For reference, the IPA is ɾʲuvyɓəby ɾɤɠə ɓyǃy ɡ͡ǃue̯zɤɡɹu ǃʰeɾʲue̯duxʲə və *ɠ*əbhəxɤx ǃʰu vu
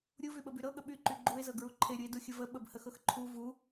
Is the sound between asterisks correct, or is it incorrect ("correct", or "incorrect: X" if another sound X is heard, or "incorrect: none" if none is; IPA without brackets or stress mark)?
incorrect: ɓ